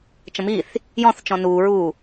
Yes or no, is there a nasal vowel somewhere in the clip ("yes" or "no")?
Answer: yes